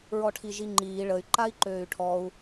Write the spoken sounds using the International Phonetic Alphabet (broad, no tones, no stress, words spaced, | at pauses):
ɹɔʈʰiʒiŋ͡ǃiː ɭəy̯ ǃai̯ǃøːy̯ʈʰɔu̯